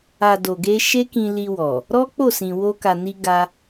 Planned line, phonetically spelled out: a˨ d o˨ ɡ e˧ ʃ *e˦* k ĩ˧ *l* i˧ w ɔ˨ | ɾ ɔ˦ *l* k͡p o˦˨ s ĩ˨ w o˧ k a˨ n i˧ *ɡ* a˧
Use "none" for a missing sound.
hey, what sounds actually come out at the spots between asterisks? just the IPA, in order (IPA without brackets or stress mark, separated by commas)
e˦, l, none, ɡ